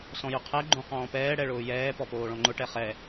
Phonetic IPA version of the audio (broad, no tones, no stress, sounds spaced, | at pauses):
s ɔ̃ j ʊ qʰ ɛ ɡ͡ǃ õ q ɔ̃ː p ɛː ɽ ɛ ɭ ʊː j ɛː p ɔ p oː ɭ ɔ̃ ŋ͡ǃ ʊ ʈ ɛ χ ɛ